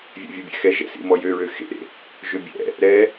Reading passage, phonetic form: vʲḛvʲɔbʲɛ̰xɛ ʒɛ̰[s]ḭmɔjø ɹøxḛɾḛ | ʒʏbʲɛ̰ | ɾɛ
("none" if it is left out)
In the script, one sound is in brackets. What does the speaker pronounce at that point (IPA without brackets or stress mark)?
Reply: s